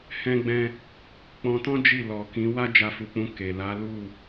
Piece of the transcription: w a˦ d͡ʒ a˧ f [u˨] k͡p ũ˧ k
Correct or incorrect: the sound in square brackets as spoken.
correct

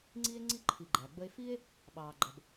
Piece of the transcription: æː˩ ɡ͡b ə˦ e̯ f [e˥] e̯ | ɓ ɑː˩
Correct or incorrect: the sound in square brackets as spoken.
incorrect: i˥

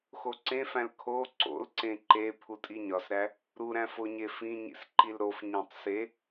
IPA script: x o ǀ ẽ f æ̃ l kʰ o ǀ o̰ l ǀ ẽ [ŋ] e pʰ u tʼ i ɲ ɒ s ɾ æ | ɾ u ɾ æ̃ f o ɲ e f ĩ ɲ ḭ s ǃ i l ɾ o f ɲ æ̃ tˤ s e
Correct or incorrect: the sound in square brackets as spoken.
incorrect: ǃ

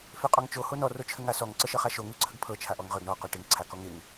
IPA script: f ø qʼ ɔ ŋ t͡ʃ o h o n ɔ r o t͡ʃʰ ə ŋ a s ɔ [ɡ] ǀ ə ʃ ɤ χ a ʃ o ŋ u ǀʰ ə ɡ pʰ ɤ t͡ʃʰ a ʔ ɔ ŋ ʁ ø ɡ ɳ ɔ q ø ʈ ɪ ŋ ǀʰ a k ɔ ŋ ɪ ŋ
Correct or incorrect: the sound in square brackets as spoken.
incorrect: ŋ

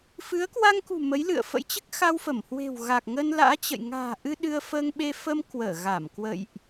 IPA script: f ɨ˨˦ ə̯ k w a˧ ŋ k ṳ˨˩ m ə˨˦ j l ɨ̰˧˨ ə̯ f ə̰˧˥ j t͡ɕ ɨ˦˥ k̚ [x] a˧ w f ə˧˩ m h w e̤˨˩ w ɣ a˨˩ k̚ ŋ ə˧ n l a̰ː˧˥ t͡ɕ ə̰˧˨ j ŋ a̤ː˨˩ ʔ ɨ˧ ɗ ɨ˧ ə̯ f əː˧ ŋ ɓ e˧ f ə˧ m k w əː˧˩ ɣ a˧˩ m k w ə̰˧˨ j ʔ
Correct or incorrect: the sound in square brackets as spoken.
correct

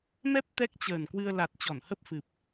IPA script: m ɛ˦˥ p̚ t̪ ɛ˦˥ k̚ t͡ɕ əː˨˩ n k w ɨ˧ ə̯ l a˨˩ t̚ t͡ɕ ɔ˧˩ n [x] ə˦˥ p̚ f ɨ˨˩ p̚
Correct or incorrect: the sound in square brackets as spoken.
incorrect: h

